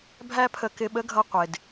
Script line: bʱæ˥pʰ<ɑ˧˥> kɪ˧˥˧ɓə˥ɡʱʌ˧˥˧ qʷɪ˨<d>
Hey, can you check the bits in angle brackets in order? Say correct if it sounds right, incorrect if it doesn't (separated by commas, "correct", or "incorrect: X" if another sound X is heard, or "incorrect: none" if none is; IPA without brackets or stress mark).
incorrect: ə˧˥, correct